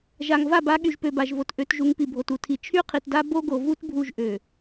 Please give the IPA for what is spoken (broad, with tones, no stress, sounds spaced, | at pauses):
ʒ a˨ ŋ v a˦˨ b a˨˦ ɠ y˨ ʒ p ø˨ b a˨ ʒ v o˨ t ʔ ø˨˦ t ʒ u˨˦ ŋ p i˨ bʱ o˨ t u˨ tʰ i˨ t͡ʃʰ y˦ qʰ i˨ t d a˦ b o˦ ɡ o˨ v u˦ t bʱ u˦ ʒ ʔ ø˨